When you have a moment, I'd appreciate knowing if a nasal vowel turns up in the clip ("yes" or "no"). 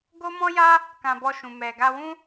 yes